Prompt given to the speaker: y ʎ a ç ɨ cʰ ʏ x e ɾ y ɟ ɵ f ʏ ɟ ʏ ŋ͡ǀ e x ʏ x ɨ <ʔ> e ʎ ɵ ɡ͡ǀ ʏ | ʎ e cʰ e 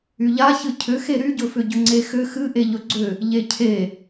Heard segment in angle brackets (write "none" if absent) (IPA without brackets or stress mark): ʔ